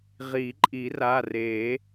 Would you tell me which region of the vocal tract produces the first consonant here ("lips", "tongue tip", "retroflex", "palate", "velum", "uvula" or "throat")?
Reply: uvula